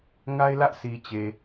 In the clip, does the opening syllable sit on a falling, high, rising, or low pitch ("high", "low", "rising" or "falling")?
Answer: high